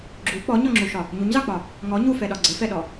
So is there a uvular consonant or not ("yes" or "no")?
no